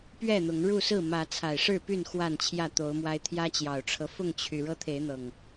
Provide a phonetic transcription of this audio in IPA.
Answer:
p ɥ ɛ˥˨ n̪ ʊ˨˦ ŋ ɻ u˥˨ s ɹ̩˥˨ m ä˨˦ t͡sʰ a˨˩ ɪ̯ ʂ ɻ̩˥˨ p y˥˨ n x w a˥˨ n t͡ɕʰ j ä˥˨ t̪ o˨˦ ʊ̯ m w a˦ ɪ̯ t̪ʰ j ä˦ t͡ɕ j ɑ˨˩ ʊ̯ ʈ͡ʂʰ ɤ˦ f ʊ˥˨ ŋ t͡ɕʰ y˩ ɻ ɤ˦ t̪ʰ e˨˦ ɪ̯ n̪ ɤ˨˩ ŋ

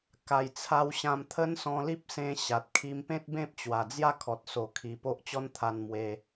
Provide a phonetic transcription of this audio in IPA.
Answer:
k a˨˩ j t͡sʰ a˧ w ɕ ã˧ m t̪ʰ ə˦ n s ɔ̃˧ l i˦ p̚ s ẽ˧ ɕ a˨ t̚ kʰ i˧ m p ẽ˦ t̚ b ẽ˦ p̚ t͡ɕ w a˨˩ d͡z j a˥˧ kʰ ɔ˨ t̚ s o˨˩ kʰ i˨˩ p o˦ ʔ t͡ɕ ɔ˦ n t̪ʰ a˧ n m w e˧

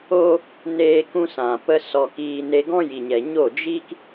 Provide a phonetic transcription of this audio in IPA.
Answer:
o˦ | n eː˦ k ũ˦ s ã˨ p ə˦ s ɔ˧ k iː˧ n e˧ ɡ ɔ̃˦ j i˨ ɲ ɛ˨ ɲ o˦˨ d͡ʒ iː˦ k

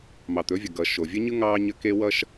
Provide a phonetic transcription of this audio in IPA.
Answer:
m ɑ˨ t̪ ɵ˨˦ vʲ ʌ˨ ɡ ʌ˨ ʃ o˨ vʲ ə˦ ɲ ɯ˦ ŋ ɑ˦ ɲ ə˦ k e˦ w ʌ˦ ʃ

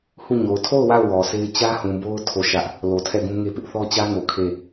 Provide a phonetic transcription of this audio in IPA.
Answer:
h u˦˨ ɲ o˨ ʊ̯ tʰ o˦˨ ʊ̯ w a˦˨ ʊ̯ w ɔ˨ s e˦ ɪ̯ t͡ɕ ä˦ h ũ˨ b o˦ ʊ̯ tʰ o˦˨ ʃ ä˦ ʔ | l o˨ tʰ ɛ˦˨ ɡ ũ˦ ŋ e˦ p ɪ˦ ʔ θ ɔ˦ t͡ɕ ä˦ ŋ o˨ kʰ e˦˨

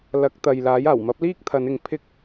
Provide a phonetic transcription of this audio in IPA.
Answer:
l ɐ˨˥ k̚ t̪ ɐ˨ j l aː˨˥ j aː˨˩ w m ɐ˨˥ p̚ l iː˥ k̚ t̪ʰ ɐ˨˧ n ɪ˨ ŋ pʰ ɪ˧ k̚

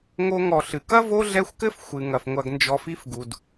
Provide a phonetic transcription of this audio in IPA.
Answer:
ŋ o˦ ŋ ɔ˨ ɬ ɨ˩ k ɐ˥ v o˦ ɮ ɛ˦ xʷ k ɘ˥ f xʷ ɨ˩ ŋ ɐ˩ f ŋʷ ɐ˨ ɡ n d͡ʒ ɔ˨ f i˦ f ɡ u˩ d

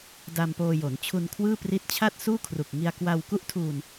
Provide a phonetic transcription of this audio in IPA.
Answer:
d a˧ m p oː˧ j o˩˦ n t͡ɕʰ u˧ n kʰ w ɯː˥˩ p r i˦˥ t̚ t͡ɕʰ a˥˩ t̚ s uː˥˩ kʰ r u˨˩ k̚ ŋ i˧ a̯ k w a˧ w k u˥˩ ʔ tʰ uː˧ n

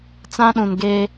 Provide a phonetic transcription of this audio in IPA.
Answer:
t͡s ã˦ ɗ ũ˨ n ɡ eː˦

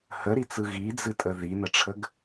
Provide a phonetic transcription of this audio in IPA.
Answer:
h ə ɾ i t͡s ɯ ɣ i d͡z ɨ tʼ ə ð i n ə ʈ͡ʂʰ ə ɡ

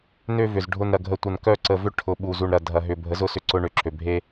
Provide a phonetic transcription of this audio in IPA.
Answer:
n ø˦ v ʏ˨ z ɖʱ ʊ˨ n ɾ ɐ˨ ɡʱ ə˨ tʷ ɐ˨ n k œ˦˨ ǀ ə˨ v ʏ˦ ʈʰ ʊ˨ ɓ u˨ z u˨ ɳ ɾ ɐ˨ dʱ ɐ˨ ɦ ʏ˨ bʱ ə˨˦ z ʊ˦˨ s ʏ˦ ǀ ʊ˦ ɳ ø˨ ǁʰ ø˨ bʱ e˦

